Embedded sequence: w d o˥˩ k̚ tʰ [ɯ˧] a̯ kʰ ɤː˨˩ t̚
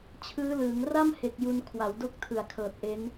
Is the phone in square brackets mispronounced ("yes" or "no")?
yes